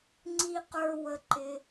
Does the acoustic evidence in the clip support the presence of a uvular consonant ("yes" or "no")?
yes